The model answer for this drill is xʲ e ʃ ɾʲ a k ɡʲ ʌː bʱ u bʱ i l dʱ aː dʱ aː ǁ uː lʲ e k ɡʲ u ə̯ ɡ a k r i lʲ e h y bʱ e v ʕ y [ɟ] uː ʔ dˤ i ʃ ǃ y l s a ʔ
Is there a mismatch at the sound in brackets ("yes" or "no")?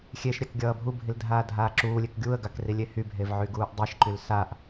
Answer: yes